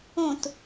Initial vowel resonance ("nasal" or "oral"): nasal